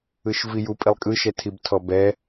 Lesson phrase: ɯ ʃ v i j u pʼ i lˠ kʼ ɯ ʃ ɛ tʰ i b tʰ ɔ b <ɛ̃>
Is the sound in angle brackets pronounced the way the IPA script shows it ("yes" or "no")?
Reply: no